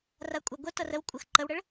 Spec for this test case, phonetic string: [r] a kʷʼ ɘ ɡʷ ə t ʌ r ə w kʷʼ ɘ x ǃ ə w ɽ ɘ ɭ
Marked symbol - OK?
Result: yes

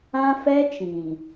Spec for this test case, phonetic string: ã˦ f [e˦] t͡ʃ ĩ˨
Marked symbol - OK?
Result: no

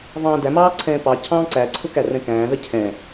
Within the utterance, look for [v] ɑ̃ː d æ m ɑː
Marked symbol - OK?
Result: yes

